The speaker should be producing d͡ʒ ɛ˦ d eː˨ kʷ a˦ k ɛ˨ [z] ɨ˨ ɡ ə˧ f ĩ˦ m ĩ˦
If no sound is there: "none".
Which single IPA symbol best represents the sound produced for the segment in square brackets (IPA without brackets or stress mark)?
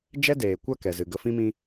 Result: z